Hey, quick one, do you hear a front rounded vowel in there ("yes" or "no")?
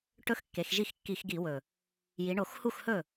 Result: no